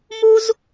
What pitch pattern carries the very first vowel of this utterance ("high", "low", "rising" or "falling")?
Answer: high